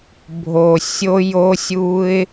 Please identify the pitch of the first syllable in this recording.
low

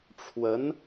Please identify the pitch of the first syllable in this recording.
rising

